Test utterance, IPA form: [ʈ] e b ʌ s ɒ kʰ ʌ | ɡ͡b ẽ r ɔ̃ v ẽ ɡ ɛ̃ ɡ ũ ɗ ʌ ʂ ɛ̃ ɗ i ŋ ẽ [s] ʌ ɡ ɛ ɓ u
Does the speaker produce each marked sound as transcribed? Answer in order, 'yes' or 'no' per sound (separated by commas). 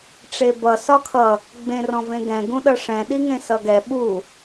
no, yes